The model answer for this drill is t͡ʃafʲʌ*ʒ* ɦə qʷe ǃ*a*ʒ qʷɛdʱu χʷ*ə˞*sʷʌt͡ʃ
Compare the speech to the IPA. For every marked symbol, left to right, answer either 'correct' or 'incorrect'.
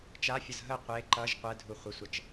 incorrect: z, incorrect: ʌ, incorrect: ə

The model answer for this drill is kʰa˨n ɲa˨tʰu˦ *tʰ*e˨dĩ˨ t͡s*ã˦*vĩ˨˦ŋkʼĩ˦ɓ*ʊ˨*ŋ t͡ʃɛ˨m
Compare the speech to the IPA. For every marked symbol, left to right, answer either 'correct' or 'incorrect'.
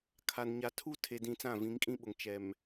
correct, incorrect: ã˦˨, correct

